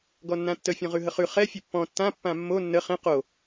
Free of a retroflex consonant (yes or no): yes